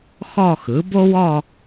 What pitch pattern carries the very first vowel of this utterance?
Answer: falling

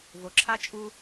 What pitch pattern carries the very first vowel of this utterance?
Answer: low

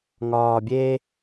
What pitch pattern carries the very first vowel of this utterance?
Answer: low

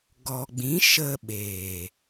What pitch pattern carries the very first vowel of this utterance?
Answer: low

